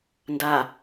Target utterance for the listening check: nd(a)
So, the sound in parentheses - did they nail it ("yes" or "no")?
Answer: yes